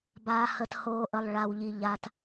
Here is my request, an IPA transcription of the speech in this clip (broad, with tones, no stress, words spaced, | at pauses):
baː˩hə˩thoː˩ʔə˩lˠ ɭa˩wʎi˩ ʎa˩t